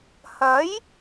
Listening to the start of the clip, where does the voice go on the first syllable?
rising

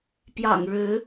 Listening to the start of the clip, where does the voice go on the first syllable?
low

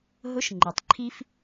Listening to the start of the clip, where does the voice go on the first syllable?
rising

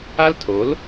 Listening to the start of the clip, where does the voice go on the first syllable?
high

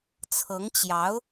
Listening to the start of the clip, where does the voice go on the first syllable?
rising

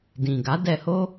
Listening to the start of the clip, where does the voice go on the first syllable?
low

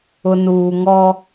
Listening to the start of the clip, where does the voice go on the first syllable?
low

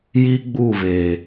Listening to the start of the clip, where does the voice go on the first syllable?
high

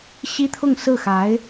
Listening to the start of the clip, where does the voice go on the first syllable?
high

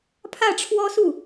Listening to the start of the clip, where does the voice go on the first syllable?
falling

